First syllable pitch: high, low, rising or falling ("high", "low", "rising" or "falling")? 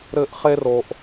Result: high